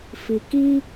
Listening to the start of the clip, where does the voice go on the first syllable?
low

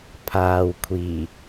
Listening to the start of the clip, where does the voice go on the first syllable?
low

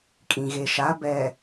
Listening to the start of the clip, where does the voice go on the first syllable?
low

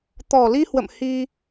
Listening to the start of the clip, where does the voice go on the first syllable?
low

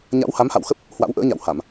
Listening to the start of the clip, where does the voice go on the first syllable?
rising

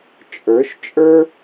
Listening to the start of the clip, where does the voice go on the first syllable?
rising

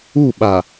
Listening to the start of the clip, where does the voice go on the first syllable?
falling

